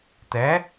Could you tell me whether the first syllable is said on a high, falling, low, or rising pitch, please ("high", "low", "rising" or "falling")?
rising